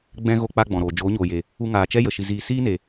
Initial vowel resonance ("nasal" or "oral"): nasal